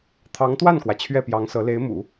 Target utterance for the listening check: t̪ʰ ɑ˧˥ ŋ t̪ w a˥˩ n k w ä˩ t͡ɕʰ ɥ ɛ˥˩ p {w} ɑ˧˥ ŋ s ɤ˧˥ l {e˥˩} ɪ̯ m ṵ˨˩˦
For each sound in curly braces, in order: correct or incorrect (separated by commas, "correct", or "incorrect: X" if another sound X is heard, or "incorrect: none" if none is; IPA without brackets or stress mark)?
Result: incorrect: j, incorrect: e˧˥